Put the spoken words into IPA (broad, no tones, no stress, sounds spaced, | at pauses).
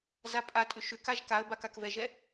z a pʼ a tʼ ʏ ʃ ʏ k a ʒ k a ə̯ b a k a k v ɛ ʒ ɛ